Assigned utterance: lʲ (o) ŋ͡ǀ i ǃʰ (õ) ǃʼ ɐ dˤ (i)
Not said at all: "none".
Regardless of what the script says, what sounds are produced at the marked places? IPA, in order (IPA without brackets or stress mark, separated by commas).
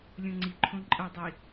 õ, õ, i